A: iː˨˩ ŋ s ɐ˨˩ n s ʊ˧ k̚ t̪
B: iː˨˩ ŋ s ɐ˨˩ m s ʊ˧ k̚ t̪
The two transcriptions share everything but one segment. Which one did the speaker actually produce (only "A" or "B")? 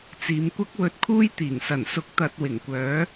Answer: A